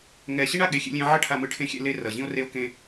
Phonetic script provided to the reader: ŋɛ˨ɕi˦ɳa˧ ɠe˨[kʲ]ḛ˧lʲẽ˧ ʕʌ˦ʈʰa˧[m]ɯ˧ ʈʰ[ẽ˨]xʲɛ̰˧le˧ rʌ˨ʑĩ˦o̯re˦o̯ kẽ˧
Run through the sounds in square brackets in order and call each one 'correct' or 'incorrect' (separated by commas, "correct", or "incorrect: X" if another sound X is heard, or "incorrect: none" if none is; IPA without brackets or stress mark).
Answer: incorrect: xʲ, correct, incorrect: ẽ˧